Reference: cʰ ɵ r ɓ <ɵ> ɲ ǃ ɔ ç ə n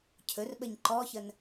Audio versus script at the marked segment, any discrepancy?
yes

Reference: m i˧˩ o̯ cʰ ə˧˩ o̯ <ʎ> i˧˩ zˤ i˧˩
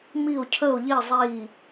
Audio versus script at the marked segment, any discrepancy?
no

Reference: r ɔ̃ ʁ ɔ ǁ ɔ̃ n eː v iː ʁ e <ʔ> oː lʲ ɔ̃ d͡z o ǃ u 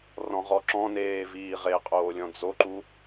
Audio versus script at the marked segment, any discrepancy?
yes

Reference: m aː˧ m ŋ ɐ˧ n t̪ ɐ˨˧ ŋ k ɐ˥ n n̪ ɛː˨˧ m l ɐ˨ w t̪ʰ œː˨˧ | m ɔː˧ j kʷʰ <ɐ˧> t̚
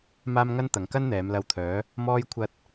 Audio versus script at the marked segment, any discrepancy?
no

